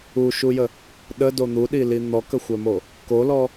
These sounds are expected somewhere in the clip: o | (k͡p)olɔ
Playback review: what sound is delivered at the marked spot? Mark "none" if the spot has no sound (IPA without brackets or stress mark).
k